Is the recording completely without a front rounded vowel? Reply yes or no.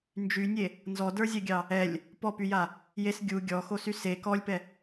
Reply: no